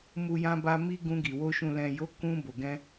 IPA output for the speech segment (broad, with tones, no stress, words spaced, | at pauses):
mu˧jã˧ba˧ mi˦ɡũ˧ɡi˨wo˧ ʃũ˨lɛ̃˨jo˨˦ kũ˧ bo˨ɡɛ̃˧